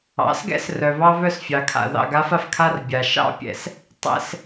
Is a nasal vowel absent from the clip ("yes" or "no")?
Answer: yes